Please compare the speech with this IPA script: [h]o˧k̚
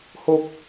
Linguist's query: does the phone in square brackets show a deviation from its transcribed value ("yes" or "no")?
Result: no